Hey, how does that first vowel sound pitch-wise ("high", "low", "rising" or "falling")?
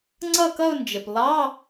falling